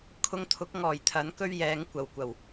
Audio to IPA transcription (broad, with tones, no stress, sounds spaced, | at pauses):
kʰ ʊ˧ ŋ t̪ʰ ʊ˨˥ k̚ ŋ ɔː˨˩ j t̪ʰ ɐ˨˥ n k ɵ˥ ɥ j ɛː˨˥ ŋ kʷ ɐ˨˩ w kʷ ɐ˨˩ w